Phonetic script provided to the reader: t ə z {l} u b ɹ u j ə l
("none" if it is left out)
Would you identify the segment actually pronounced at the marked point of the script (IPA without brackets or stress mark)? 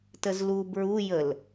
l